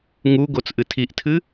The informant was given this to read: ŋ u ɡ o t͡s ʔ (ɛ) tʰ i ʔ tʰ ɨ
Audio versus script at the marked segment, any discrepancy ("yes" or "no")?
yes